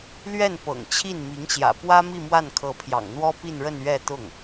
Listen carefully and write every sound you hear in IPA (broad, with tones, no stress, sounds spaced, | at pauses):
l ɥ ɛ˥˩ n p ɤ̰˨˩ ŋ t͡ɕʰ i˥˩ n m i˧˥ ŋ ɕ j ä̰˨˩ p w ä˥ m i˥˧ m w a˥˩ n kʰ ɤ˧˥ pʰ j ɑ̰˨˩ ŋ n̪ w ɔ˥ p i˥˧ n ɻ ə˥˧ n ɥ ɛ˥˧ t̪ ʊ˥˩ ŋ